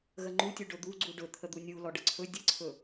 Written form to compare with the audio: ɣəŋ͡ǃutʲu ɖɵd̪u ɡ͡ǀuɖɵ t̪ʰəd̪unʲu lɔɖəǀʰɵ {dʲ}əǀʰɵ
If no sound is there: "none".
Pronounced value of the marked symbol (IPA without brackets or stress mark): dʲ